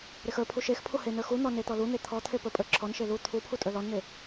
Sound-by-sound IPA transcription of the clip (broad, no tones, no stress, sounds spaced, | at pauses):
ɾ e x ə˞ pʰ u ʃ e x pʰ u h e n ə˞ x u n̪ ɔ n e t̪ ɔ l u n̪ e t̪ʰ ɔ t̪ʰ e p ə˞ pʼ ə˞ ǁʰ ɔ n ʃ e l u t̪ʰ u pʰ u tʼ ə˞ l ɔ n n̪ e